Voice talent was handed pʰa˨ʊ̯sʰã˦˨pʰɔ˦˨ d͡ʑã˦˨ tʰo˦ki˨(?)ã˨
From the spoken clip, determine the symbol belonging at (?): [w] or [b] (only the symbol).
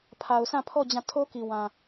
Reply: w